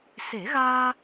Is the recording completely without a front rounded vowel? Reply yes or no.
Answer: yes